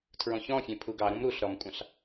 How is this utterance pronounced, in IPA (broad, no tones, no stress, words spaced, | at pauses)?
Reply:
tʰɹɔ̃çɔ̃fʲẽ pʰuɡɑɾũm ɾuɬ ɾɔmkʷʼɑ̃ɬ